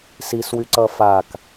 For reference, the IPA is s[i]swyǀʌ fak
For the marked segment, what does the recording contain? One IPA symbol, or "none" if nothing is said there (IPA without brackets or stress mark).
i